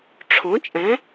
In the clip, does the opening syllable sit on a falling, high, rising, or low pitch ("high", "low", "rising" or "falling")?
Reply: rising